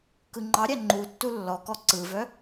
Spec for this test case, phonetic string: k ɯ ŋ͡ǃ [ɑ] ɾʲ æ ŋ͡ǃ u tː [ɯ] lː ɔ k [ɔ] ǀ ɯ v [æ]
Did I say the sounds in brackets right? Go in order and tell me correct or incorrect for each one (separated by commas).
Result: correct, incorrect, correct, incorrect